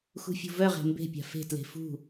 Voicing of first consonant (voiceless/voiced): voiceless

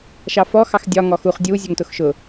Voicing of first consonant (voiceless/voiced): voiceless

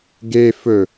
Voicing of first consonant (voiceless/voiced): voiced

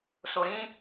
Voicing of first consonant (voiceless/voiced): voiceless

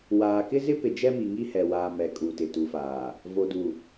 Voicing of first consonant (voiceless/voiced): voiced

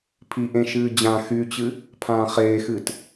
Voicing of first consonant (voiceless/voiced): voiceless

